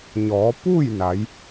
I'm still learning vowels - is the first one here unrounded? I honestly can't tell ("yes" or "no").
no